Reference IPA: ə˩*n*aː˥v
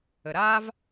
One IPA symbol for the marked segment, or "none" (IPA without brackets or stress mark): ɾ